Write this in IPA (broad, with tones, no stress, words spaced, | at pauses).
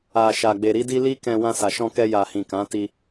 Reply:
a˨ ʃa˨ɡ͡be˨ɾi˧di˧ li˦kɛ̃˧ wã˧sa˨ʃɔ̃˧kɛ˧ ja˨hĩ˨ kã˨˦ti˧